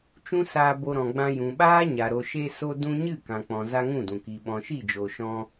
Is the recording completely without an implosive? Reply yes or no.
no